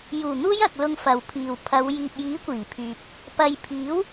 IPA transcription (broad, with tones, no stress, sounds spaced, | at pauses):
j uː˨˩ n̪ uː˧ j ɐ˨ k̚ l ʊ˧ ŋ f ɐ˨ w pʰ iː˨ w pʰ ɐ˨˧ w j iː˨ p̚ j iː˨˥ kʷ iː˨˩ pʰ yː˨ p̚ | p ɐ˨ j pʰ iː˨˥ w